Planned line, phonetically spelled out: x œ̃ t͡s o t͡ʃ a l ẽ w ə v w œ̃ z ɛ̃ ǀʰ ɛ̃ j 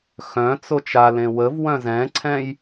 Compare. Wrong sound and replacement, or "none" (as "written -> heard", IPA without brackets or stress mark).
none